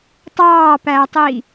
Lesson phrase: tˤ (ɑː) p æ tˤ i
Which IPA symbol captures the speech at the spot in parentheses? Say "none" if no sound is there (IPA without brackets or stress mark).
ɑː